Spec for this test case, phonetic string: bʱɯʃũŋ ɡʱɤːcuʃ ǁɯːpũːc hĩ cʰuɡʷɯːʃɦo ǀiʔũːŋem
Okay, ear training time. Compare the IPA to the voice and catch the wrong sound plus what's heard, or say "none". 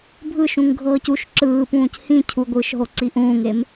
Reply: none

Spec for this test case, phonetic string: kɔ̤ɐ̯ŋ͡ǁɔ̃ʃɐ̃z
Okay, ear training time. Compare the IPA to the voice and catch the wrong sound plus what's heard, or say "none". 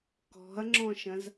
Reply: none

